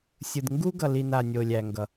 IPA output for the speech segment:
sʲ ɯ˨ d ŋ ɡ u˦ ɡ ʌ˨ l i˨ n a˨ nʲ o˨ lʲ æ˨ ŋ ɡ ʌ˨

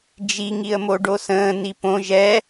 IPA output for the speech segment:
d͡ʒ i ŋ i ə̯ m o ɖ o s ə̃ː n i p õ ʒ ɛ

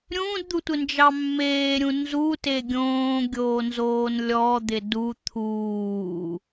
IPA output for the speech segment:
ɾʲ ũː d d̪ u tʷ ɪ n d͡ʒ ɑ mː eː ɾʲ ũ n z u t e ɡʲ õː ɡʲ oː n z oː n lʲ ɔ d̪ ɪ d u t̪ʰ uː

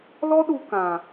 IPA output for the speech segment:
l ɔ˦ ɗ u˧ k ã˨

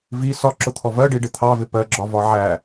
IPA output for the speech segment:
v i s ɒ ǁ ʊ t̪ʰ ɔ v ɜ ɖ i ɖ ɪ t̪ʰ ɑ v ɪ p ɜ ɡ͡ǁ ɒ v ɒ ʕ æ

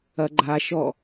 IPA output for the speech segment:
ɐ ɡ͡ǃ a ʃ ɔ

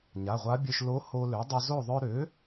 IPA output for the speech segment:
ɲ a˩˧˩ ʁʷ a˧˥ bʲ ø˧ ʃ l o˧˥ h o˧ l ø˩˥ dˤ y˧ z o˥˨ ðˤ œ˧ ɾ ø˩˥

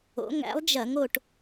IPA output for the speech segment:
o̰˨˥ ŋ æ̰˨˥ lˠ d͡ʒ ɐ˧˩˧ ŋ o˥˨ ʈ

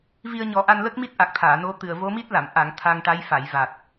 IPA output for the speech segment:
v i˧ ə̯ ɲ ɔ˨˩˦ ʔ a˧ n l ə˦˥ k̚ m i˦˥ t̚ ʔ a˨˩ k̚ t̪ʰ aː˨˩˨ n o˧˥ t̪ ɨ˨˩ ə̯ v o˧˥ m i˦˥ t̚ l a˨˩˨ m ʔ a˨˩˨ ŋ t̪ʰ a˧ ŋ ʈ a˧˥ j f a˨˩˨ j v a˨˩ t̚

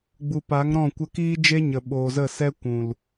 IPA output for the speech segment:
ɡ͡b u˨ p a˨˦ ŋ ɾ ɔ̃˦˨ kʷ ə˧ k iː˦ d͡ʒ e˦ ɲ ə˨ ɓ oː˨ z ə˦˨ s ɛ˦ kʷ ũ˨ l

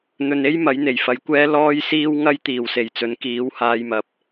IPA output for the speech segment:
n̪ ɵ˨ n e˥ j m ɐ˨˥ j n̪ e˨˩ j f ɐ˨˥ j kʷ ɛː˥ l ɔː˥ j s iː˥ w ŋ ɐ˥ j t̪ iː˨˩ w s e˨˩ j t͡s ɵ˨˥ n k iː˨˥ w h aː˧ j m ɐ˨ p̚

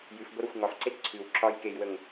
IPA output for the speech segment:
j ʉ f ɡʷ ə ɾ ɔ xʷ ŋ ɒ f ǀ e t ǀʰ ʉ w ǁ ɒ j k e j w ə ŋ

